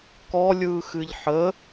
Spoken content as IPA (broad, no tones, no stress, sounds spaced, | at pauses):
k ɔ lʲ ɯː x ɨ ʎ ħ ə